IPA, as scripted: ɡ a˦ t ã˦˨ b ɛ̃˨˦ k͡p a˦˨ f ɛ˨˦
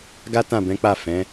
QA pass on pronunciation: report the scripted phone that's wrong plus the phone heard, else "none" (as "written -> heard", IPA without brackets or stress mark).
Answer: ɛ˨˦ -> ɛ̃˨˦